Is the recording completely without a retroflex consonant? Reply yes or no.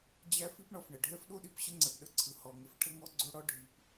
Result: no